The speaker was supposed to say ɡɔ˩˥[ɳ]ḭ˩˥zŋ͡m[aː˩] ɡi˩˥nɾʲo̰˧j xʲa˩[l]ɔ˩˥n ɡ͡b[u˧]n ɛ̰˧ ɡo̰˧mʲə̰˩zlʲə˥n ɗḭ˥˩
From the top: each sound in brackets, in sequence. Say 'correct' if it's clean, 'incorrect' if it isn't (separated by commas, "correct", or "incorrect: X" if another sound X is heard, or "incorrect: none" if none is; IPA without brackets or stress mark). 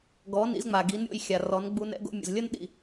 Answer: incorrect: n, incorrect: a˩, incorrect: r, correct